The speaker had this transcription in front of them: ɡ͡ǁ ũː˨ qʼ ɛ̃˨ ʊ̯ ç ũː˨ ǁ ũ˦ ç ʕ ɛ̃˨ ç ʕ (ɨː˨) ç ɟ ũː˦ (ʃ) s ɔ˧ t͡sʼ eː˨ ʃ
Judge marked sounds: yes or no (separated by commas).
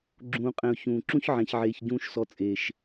no, yes